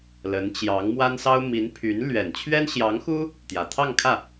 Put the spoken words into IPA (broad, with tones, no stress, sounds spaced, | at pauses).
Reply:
l ə˧˥ n t͡ɕ j ɑ˧˥ ŋ m w a˥ n s ɑ˥ ʊ̯ m i˧˥ n pʰ y˧˥ n l ɥ ɛ˨˩ n t͡ɕʰ ɥ ɛ˥ n ɕ j ɑ˧˥ ŋ x u˥ | t̪ j ä˨˩ t̪ʰ ɑ˥˧ ŋ kʰ ä˥˩